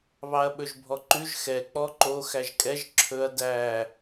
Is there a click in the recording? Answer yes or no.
yes